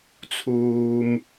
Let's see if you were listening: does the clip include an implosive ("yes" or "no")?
no